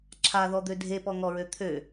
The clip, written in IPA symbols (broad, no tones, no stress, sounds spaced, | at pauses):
ǁʰ a ð ɔ d̪ ø dʱ e p ɔ ŋ ɔ ɹ ø t̪ʰ ø